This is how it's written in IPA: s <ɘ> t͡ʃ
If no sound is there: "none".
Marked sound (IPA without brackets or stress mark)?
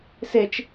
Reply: e